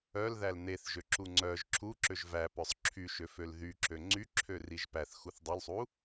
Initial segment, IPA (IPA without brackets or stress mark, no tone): œ